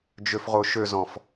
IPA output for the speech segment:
d͡ʒ ø f ʁ o ʃ ø z ɔ̃ f

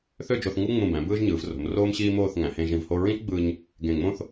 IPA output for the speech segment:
θ ø˥˧ d͡ʒ o˧ θ ŋ u˥ ŋ͡m ũ˧˩ b æ̃˩˧ b ɯː˥ ʒ ɲ ɯː˩˧ v r o̤˩˧ m r oː˥ m ɕ iː˥ m oː˥˧ θ ŋ æ̃˩˧ h ẽ˧ ʒ ĩ˧˩ v h o˥˧ ɹ ĩ˥ t͡ʃ ɡ͡b ɯː˧ ɲ | ɡ ẽ˧˩ ŋ͡m õ˥ θ

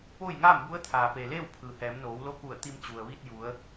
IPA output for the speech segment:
p oː˥˨ j ŋ aː˥˨ m b u˧˥ ə̯ t̪ʰ aː˩ p e˩ l eː˥˨ w pʰ ɯː˩ h ɛː˩˧ m n oː˩˧ w l o˧˥ k u˧˩ ə̯ t̪ i˧ m t͡ɕ u˩ ə̯ ʋ i˧ t̚ j u˩˧ ə̯

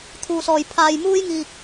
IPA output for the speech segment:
t̪ʰ uː˧ s ɔː˧ j pʰ aː˧ j m uː˥ j ŋ iː˧ k̚

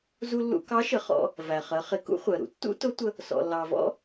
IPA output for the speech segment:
z u˧ lː ṵ˧ k ɑ˧˥ ʃ ə˩˧ χ ɔ̰˧ | v æ˩ χ ɜ˩˧ χ ɪ˩˧ k ṵ˧˥ χʷ ɜ˩ ɾ ṵ˩ tː ṵ˥ t ʊ˧˥ tʷ ə˧ | s ɔ̰˩ lː ɑ˩ v ɔ̰˧

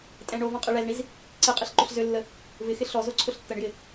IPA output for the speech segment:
tʼ ɛ̃ ɳ o v ɔ̃ qʼ e ɭ ɛ z ɳ i z | ǀ e qʼ e ɬ ǃ ʊ ɬ z ø lː ə | v ɪ x ɪ ɬ ɔ z o ǀʰ ʊ ɬ tː ə ɳ j ɪ

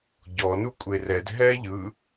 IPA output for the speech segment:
ɟ ɔ n u kʷʼ e r ɛ d ɦ ɛ ʎ ɯ

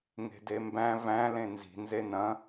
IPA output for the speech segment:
ŋ e̤ d e m b æ̃ v æ̃ l ẽ n z i̤ n z e n ɐ̃

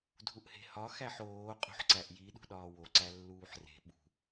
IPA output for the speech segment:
dʱ u ʔ h e̤ h ɒ x æ ħ oː qʼ ṳ ħ ǀ æ ʔ j i ɗ ṳ ɗ ɒː w o ǀ æ lː uː ħ r e̤ ɓ ṳ

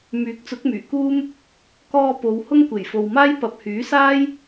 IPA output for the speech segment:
m yː˨˥ k̚ t͡s ʊ˨˥ k̚ m yː˨˩ k uː˥ m | k ɔː˧ p o˨ w h ʊ˥ ŋ kʷ e˨˩ j f o˨ w m aː˥ j p ɐ˨ p̚ h yː˨˥ s aː˥ j

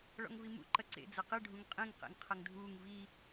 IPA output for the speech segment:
ɭ ɔ̰ ŋ v i m ṵ ǃ ɐ ǀ ḛ d͡z ɐ q ɨ ɖʱ ũ ŋ qʼ ĩ ŋ q ḛ ŋ qʰ ɐ ŋ dʱ uː ŋ v i

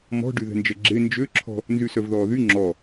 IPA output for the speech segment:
m ɔ̤ ɖ y ð ɛ̤ n d͡ʒ ɛ ɡ͡ǁ e n d͡ʒ ø ǁʰ ɔ̤ | n z y s œ v ð ɔː ð y ŋ͡ǁ ɔ

